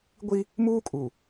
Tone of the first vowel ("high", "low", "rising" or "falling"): high